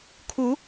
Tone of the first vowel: rising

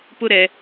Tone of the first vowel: high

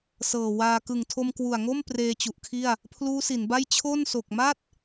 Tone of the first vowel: low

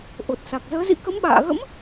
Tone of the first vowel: low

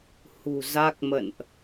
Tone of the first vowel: low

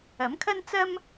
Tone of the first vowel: rising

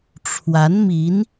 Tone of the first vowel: rising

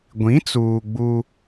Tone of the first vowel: rising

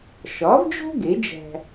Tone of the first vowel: rising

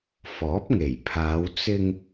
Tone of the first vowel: rising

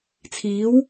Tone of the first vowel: rising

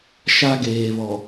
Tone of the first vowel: high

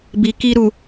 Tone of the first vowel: low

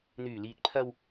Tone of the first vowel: low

